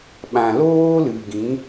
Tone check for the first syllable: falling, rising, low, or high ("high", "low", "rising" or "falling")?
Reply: low